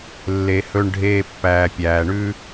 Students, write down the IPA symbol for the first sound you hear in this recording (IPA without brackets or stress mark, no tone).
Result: lː